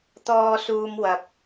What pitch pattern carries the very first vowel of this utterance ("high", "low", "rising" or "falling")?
low